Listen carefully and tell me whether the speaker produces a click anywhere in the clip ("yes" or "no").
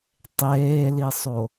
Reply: no